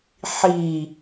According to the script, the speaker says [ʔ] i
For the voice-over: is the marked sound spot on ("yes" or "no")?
no